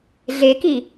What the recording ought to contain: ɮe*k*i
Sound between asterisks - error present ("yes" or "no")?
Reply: no